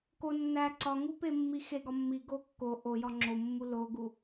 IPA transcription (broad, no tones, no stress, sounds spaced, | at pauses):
k o nː æ ǀ ɒ ŋ u p e mː i x e ɡ ɒ mː i ɡ o kː o ʔ o j ɒ ŋ͡ǁ o mː u l o ɡ u